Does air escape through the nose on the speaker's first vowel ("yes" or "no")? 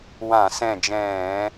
yes